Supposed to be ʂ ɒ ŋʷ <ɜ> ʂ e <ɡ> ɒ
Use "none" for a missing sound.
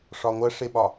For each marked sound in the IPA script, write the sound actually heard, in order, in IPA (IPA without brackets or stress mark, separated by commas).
ɜ, ɓ